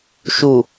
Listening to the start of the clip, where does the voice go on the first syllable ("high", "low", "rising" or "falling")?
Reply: low